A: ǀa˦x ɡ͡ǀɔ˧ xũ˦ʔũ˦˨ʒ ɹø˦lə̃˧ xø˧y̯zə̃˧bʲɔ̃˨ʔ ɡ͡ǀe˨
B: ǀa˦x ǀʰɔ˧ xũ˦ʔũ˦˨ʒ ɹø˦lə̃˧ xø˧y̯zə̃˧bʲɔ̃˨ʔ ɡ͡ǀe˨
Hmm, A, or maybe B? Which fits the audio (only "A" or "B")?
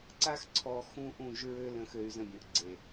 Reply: B